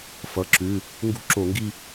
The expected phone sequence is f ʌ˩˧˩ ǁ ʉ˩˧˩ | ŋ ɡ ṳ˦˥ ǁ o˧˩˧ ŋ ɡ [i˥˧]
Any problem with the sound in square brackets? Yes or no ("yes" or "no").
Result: no